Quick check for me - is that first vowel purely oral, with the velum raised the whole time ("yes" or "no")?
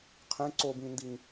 no